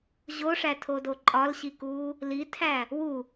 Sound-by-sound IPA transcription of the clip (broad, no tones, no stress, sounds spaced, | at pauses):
ʑ o ʂ æ tʰ o d o ǃʼ ɒ l ɕ i k uː | l i tʰ æ | w u